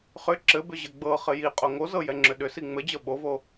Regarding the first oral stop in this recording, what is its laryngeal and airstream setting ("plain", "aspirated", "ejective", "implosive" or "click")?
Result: click